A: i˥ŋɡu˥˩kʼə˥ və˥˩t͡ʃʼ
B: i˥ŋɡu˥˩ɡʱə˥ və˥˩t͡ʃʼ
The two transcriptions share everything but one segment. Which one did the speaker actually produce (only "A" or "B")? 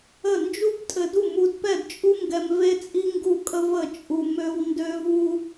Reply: A